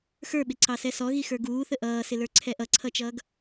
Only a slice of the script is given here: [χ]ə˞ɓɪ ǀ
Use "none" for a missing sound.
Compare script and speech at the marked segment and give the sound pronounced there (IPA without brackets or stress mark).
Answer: x